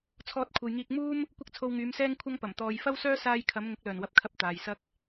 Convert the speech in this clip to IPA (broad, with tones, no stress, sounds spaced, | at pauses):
t͡sʰ ɔː˧ t̚ kʷʰ ɐ˨ j ŋ iː˧ k̚ m uː˥ m | kʷ ɐ˥ k̚ t͡sʰ o˧ w ŋ yː˨˧ m s ɛː˥ ŋ kʷʰ ɐ˥ ŋ p ɐ˨˩ m t̪ ɔː˨ j f ɐ˥ w s œː˥ s aː˧ j kʰ ɐ˨˧ m ŋ ʊ˨˥ k̚ l œː˨˩ n w ɐ˨˥ p̚ kʰ ɐ˧ p̚ t̪ aː˨ j s ɐ˥ k̚